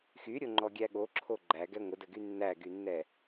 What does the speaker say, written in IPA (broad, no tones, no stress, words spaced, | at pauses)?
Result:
xyɾʲoŋ͡ǃɔɡʲæ ɠoǁʰo ɡ͡ǃæɡɛ ŋʷədəɡy nːæɡynːɛ